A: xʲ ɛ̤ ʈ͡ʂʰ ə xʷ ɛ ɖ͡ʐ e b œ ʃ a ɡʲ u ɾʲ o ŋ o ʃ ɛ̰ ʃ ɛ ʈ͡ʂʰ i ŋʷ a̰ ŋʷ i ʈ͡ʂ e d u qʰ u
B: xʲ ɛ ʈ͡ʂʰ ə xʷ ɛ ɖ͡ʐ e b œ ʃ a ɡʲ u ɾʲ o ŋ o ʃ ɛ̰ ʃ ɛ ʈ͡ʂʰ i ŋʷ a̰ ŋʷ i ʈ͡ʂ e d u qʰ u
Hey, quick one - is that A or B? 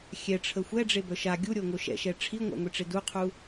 B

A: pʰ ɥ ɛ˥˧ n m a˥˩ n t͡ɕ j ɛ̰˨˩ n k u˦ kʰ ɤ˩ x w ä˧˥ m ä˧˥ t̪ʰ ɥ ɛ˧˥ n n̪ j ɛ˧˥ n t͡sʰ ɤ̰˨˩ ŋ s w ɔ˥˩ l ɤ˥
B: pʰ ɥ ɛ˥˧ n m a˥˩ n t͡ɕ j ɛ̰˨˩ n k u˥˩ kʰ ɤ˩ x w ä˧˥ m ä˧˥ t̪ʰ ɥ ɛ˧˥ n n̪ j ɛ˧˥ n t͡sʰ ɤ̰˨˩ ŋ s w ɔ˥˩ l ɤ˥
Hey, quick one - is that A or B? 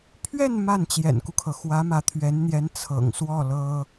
A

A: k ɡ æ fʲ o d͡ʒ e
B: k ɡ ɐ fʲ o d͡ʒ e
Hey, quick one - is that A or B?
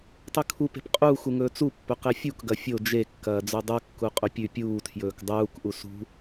B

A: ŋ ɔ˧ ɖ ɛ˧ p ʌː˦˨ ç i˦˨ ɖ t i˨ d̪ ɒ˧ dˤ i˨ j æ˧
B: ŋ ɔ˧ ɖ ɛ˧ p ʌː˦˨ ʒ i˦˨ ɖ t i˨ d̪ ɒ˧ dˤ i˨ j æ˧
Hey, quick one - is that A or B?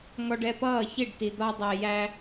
A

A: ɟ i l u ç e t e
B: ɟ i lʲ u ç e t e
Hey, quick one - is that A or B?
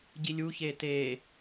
B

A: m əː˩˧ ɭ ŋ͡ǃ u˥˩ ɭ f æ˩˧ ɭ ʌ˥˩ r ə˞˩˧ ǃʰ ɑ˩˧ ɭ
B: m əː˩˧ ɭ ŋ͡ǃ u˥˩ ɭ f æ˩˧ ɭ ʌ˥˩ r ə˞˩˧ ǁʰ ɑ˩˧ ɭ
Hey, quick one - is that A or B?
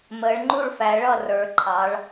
A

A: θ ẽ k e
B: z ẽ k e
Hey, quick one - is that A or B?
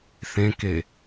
A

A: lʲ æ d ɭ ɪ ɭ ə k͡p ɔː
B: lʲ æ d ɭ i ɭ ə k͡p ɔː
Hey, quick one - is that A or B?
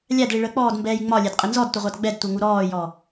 B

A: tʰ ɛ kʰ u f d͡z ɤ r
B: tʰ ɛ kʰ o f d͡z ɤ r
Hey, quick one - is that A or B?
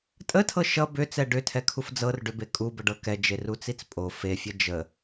A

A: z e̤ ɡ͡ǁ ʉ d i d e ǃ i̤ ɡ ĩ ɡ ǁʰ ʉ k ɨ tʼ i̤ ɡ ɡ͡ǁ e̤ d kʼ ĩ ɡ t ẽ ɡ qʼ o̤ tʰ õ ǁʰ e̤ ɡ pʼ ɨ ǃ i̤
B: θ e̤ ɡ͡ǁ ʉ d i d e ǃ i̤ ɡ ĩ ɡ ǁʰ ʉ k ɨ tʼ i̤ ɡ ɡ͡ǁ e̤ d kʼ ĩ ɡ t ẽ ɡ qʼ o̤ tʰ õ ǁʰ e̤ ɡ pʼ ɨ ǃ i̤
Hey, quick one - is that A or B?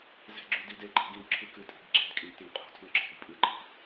A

